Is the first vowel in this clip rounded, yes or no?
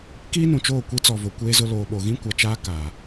no